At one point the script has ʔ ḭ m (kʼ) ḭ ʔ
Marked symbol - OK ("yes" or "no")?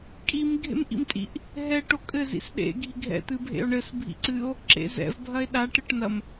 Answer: no